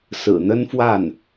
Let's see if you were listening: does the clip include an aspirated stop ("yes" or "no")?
no